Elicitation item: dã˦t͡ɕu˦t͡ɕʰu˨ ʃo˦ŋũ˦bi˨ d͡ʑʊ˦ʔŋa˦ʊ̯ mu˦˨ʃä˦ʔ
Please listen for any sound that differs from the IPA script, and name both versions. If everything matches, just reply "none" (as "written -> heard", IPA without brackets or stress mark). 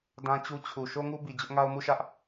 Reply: ũ˦ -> u˦